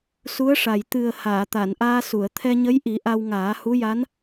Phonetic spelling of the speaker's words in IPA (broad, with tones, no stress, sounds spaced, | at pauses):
s u˧˥ ə̯ ʂ a˨˩ j t̪ ɨ˨˩ ə̯ h aː˨˩˨ t̪ a˨˩˨ n ʔ aː˧ s u˨˩˨ ə̯ t̪ʰ ɛ˧ ɲ ə˧˥ j ʔ i˨˩˦ ʔ a˧ w ŋ aː˨˩˦ h u˧˥ j a˧˥ n